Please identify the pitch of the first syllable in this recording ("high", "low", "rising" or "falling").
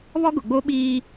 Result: high